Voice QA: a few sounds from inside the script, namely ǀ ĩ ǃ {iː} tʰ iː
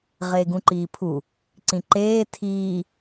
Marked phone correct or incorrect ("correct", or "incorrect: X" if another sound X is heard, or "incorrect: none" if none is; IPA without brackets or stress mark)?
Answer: incorrect: eː